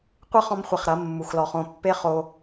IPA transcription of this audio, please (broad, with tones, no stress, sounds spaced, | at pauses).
qʷ ɨ˦ χ ɔ̃˦ m χʷ e˧ χ ɾ ɐ˨˦ mː u˨ x l ɔ˨ χ õ˦˨ pː e˦ χ o˦